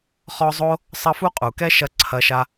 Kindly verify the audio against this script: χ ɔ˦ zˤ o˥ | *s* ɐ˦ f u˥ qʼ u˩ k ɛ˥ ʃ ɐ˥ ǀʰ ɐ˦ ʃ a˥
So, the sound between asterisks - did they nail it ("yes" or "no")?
no